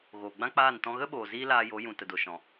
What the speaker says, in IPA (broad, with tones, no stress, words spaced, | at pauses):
ɣoː˨ɡ͡bã˦k͡paː˦˨n tɔ̃˧ɣə˦ɓoː˨ ziː˦laː˧jo˨˦ jũ˨tə˨do˨ʃɔ̃˨